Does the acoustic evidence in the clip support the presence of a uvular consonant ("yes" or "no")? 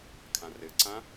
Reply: no